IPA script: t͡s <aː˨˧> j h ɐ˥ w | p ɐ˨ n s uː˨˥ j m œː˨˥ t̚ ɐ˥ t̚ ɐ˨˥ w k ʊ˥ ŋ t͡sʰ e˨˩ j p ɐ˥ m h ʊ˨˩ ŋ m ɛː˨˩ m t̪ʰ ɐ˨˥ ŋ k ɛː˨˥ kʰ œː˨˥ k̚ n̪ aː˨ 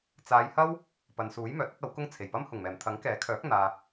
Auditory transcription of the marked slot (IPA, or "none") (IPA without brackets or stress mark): aː˨˧